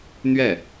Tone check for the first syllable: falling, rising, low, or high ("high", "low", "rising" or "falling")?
falling